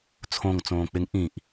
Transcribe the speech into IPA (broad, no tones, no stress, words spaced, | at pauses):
t͡sʰõŋ t͡sõːk͡pɪŋ ʔĩʔ